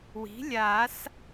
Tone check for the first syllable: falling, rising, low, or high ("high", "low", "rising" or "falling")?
rising